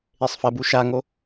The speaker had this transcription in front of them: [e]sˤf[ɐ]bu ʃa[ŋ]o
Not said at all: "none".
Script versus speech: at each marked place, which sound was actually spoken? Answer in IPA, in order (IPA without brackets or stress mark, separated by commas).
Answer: e, ɐ, ŋ